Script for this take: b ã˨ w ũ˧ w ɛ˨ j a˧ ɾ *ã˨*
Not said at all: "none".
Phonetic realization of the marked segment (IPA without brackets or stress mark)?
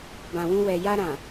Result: ã˨